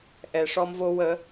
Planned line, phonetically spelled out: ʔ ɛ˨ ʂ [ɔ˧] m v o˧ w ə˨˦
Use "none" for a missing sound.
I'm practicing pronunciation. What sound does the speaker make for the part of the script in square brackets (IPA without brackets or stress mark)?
ɔ˧